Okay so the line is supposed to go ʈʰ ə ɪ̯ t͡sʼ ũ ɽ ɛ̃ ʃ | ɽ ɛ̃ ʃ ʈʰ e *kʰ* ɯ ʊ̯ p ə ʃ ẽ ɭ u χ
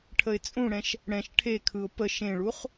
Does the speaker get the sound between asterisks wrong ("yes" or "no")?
no